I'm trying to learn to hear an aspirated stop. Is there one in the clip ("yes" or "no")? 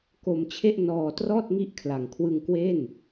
yes